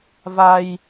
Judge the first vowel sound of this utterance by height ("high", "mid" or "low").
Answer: low